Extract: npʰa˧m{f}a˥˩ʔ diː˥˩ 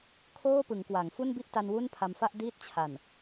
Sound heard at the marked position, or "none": f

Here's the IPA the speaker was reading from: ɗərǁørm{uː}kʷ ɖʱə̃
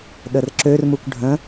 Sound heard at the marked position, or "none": u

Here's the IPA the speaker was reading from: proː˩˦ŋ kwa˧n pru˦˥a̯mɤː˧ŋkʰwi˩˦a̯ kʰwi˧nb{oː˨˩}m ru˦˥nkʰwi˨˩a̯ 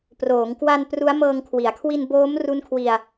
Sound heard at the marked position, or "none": oː˦˥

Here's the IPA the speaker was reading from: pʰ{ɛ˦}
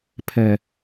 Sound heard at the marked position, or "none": ɛ˨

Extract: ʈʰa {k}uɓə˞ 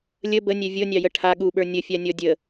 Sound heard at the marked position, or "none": ɠ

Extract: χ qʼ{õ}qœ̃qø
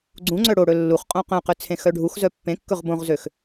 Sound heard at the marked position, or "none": õ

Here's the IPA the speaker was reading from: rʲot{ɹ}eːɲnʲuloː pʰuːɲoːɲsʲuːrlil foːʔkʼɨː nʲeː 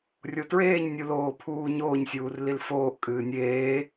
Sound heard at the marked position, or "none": ɹ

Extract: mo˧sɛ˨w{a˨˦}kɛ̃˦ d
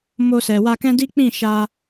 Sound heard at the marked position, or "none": a˧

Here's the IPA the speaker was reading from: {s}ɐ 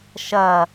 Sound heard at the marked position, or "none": ʃ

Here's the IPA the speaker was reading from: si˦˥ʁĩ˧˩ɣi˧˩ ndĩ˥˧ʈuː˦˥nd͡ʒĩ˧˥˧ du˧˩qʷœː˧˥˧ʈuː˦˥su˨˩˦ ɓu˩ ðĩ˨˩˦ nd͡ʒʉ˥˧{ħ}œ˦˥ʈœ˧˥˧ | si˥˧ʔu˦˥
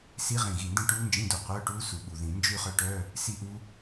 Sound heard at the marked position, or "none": χ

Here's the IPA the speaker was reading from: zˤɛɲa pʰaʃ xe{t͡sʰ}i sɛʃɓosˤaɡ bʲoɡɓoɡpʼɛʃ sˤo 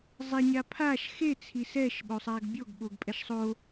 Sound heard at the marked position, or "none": t͡sʰ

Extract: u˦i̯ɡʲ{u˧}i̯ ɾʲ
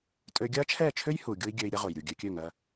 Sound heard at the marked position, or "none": ø˧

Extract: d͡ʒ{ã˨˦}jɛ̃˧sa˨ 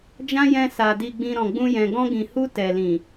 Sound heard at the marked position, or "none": ã˦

